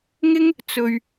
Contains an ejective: no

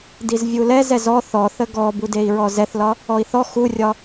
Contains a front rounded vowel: no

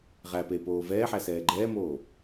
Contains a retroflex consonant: no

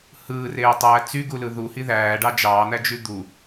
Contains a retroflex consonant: yes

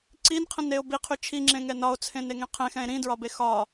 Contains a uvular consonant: yes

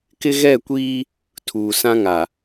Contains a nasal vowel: yes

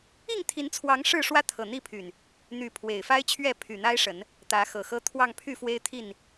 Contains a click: no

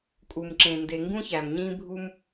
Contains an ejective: yes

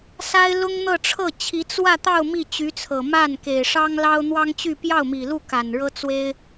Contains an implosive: no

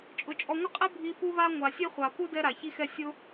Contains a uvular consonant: yes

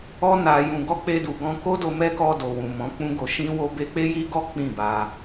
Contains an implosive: no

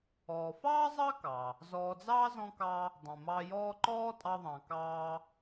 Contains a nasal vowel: yes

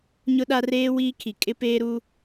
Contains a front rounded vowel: no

